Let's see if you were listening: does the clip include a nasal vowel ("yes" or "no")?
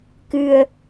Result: no